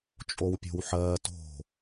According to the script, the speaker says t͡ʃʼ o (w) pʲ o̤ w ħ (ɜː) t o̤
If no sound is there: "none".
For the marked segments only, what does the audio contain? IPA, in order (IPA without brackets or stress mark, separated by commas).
w, ɜː